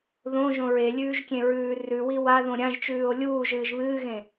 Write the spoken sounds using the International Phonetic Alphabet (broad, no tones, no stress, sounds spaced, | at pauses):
ð õ ʒ õ ɹ e lʲ ʉː ʒ kʲ ẽ ɹ ʉː r ʉ w i w a ð õ ɾʲ ã ʒ t͡ʃ ʉː o̯ lʲ uː ʒ ɨː ʒ β ɨː ɣ ẽ